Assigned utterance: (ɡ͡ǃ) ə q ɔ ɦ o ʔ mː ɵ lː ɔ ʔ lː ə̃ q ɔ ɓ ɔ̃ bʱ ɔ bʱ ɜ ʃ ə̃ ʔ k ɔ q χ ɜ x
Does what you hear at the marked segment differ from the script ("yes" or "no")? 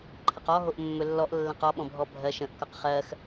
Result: yes